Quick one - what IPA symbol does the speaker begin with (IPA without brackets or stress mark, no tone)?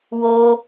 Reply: w